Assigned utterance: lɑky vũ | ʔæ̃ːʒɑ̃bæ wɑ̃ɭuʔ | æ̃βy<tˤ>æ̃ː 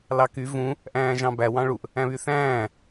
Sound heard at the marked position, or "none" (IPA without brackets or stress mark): θ